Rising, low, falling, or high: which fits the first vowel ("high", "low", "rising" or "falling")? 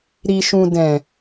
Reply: low